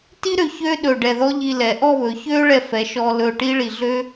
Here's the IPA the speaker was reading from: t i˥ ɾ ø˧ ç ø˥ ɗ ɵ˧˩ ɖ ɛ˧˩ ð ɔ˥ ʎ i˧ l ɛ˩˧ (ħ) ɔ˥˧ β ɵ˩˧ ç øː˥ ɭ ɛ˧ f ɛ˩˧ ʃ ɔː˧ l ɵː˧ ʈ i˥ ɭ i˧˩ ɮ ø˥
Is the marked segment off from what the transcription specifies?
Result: yes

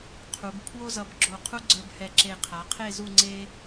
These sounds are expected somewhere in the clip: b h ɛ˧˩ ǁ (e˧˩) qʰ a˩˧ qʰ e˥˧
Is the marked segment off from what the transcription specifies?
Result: no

